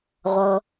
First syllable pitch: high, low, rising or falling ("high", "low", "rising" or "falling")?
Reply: low